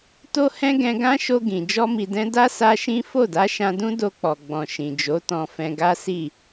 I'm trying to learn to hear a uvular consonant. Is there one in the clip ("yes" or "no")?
no